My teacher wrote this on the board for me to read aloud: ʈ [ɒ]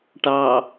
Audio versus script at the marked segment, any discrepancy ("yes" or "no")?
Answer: yes